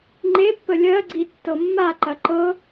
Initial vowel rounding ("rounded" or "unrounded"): unrounded